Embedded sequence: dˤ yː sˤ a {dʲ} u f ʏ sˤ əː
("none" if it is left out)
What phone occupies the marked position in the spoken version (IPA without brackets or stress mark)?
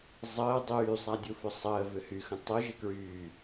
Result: dʲ